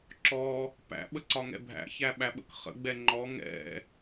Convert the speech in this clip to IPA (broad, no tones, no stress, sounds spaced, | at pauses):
ǁ ɔ | p æ̰ ɓ ə ǀ ɒ ŋ ɛ̰ bʱ æ̰ ç æ ɓ æ ɓ ə̰ k χ ə̰ ɡ͡b ɛ ŋ͡ǃ ɔ ŋ ɛ̰